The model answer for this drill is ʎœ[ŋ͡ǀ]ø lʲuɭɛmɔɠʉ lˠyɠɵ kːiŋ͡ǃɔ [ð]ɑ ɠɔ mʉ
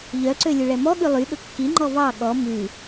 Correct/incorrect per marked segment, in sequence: incorrect: ǀ, incorrect: v

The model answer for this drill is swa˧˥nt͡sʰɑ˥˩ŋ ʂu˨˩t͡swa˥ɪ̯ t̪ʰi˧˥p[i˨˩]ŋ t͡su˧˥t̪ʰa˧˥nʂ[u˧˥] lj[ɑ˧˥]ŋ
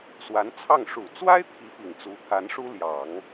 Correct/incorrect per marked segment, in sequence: correct, incorrect: u˥, incorrect: ɑ˨˩˦

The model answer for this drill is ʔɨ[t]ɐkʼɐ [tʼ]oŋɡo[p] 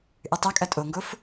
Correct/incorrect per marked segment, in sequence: incorrect: tˤ, correct, incorrect: f

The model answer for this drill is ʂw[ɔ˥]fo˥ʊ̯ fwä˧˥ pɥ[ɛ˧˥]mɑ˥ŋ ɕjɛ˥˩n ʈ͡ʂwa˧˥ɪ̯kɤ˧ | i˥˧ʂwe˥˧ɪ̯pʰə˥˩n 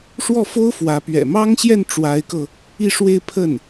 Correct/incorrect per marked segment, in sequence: incorrect: ɔ˥˩, incorrect: ɛ̰˨˩

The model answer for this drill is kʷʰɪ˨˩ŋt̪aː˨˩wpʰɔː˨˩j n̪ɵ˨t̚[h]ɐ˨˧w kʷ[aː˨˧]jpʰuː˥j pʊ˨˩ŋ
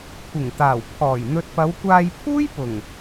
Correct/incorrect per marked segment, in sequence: incorrect: p, incorrect: aː˧

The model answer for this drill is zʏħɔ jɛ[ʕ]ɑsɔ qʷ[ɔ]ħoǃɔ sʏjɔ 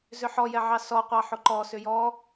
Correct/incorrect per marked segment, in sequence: correct, incorrect: ɑ

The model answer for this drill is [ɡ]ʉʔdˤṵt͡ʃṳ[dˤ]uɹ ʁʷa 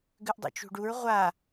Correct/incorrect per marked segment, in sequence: correct, incorrect: ɖ

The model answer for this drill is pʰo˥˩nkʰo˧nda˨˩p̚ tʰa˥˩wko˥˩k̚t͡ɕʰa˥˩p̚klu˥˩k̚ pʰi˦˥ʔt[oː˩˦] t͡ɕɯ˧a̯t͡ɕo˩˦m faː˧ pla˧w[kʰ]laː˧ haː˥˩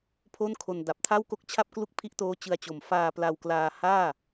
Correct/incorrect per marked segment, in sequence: incorrect: oː˦˥, incorrect: k

